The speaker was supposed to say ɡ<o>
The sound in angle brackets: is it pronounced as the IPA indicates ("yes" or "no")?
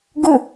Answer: yes